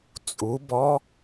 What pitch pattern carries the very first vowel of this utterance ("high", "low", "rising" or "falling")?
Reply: rising